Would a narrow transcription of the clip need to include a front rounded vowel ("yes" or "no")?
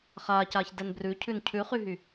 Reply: yes